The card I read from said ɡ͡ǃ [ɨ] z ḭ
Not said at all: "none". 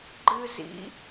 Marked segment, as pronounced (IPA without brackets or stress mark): ɨ